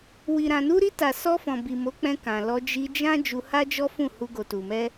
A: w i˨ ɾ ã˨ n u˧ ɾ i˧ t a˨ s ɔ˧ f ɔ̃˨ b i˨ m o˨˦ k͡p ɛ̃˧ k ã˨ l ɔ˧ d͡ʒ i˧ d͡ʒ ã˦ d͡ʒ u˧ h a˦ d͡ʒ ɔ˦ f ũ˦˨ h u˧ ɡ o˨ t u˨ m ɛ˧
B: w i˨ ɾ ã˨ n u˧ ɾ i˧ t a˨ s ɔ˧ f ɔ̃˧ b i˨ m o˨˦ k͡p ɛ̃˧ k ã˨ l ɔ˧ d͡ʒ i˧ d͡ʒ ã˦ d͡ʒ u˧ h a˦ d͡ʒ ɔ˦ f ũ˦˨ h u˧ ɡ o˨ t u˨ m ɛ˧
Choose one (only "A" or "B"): A